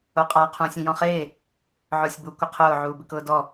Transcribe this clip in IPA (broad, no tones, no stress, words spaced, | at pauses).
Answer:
oqʼa qʰũːsʲĩjɔ̃χeː | ʕʊːsʲbu kʷɪqʰʊː ʕuːbɪkʊːdɔ